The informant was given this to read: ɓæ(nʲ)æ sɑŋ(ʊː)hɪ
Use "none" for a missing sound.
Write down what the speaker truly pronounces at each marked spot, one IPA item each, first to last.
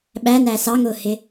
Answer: n, ʊː

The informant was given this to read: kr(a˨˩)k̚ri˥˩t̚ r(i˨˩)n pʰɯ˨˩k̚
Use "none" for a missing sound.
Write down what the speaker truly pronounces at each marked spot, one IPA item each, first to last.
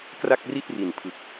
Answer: a˥˩, i˨˩

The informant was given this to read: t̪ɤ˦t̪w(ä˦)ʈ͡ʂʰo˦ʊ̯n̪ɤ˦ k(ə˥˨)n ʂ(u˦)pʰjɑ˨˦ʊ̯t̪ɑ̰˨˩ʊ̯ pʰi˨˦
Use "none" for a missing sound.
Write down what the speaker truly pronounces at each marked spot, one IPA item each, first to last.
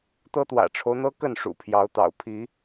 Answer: ä̰˨˩, ə˥˨, ṵ˨˩

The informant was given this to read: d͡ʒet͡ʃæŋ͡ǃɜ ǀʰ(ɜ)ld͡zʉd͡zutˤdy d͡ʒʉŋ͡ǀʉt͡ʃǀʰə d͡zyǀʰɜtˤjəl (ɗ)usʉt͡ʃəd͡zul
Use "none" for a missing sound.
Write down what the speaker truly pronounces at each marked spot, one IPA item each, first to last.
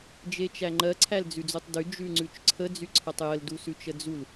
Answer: æ, d

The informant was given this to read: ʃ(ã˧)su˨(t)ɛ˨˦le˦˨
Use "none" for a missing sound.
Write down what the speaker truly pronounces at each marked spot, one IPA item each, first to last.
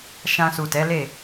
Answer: ã˧, t

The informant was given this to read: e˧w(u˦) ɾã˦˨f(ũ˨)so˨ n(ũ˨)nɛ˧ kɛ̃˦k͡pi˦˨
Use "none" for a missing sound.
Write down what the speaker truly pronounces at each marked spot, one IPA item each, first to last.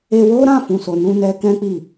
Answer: o˦, ũ˨, ũ˧

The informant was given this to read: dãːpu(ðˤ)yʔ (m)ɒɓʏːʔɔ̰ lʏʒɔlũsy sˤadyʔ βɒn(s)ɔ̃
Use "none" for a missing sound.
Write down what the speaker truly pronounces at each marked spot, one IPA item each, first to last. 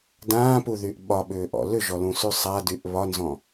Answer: ð, ɓ, z

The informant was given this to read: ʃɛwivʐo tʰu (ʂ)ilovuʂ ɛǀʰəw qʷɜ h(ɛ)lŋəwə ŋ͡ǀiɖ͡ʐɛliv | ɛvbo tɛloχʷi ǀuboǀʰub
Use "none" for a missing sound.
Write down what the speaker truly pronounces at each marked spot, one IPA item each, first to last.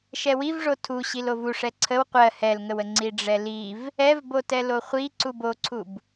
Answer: ɕ, ɛ

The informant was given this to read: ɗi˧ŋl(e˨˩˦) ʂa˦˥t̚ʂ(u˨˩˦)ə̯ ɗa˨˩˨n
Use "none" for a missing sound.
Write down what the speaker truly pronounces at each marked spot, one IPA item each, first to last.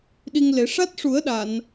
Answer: e˨˩˦, u˨˩˦

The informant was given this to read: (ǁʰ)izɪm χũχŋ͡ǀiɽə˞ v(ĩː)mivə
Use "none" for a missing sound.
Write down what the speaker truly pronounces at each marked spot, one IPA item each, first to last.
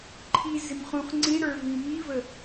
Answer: ǃʰ, ĩ

